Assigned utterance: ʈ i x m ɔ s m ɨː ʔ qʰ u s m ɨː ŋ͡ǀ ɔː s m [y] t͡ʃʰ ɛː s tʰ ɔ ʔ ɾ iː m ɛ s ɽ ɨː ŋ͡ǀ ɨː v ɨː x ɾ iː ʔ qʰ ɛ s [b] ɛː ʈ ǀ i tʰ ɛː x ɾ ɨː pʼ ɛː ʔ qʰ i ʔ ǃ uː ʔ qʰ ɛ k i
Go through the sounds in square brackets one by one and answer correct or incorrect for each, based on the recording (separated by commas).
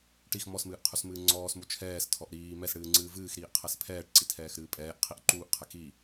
incorrect, incorrect